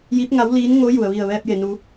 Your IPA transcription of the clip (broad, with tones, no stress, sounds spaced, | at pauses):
j i˧˥ p̚ ŋ a˧˥ w l iː˧˥ n ŋ o˧˥ j u˩ ə̯ ʋ i˧˩ ə̯ ʋ ɛː˧ p̚ j e˩ n u˩˧